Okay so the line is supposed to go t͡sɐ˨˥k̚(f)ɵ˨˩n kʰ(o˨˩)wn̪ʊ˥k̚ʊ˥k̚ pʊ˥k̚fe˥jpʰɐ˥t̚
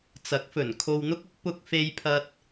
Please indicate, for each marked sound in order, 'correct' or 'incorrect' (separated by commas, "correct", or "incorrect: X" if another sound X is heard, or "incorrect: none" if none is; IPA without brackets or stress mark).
correct, incorrect: o˧